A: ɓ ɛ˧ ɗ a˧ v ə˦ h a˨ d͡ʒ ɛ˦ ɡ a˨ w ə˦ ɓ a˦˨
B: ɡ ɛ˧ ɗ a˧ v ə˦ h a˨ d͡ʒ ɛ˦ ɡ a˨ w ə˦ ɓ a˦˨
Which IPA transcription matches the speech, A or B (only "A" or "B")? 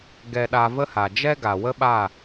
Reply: B